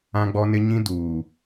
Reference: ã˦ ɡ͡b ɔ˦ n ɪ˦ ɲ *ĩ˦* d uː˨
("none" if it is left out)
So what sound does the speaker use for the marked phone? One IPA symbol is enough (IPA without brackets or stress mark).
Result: ĩ˦